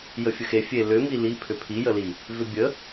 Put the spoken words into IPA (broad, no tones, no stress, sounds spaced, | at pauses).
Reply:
j ə fʲ ə x e fʲ e l ʏ m i l i pʰ ʏ pʰ i j ə l i | v ʏ bʲ ə